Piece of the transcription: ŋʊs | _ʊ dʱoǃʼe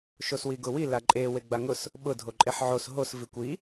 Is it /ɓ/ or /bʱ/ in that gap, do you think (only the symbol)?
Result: ɓ